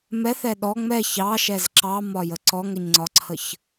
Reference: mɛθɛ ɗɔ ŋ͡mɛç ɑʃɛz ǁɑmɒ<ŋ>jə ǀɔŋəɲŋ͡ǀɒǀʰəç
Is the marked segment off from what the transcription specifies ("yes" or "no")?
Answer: yes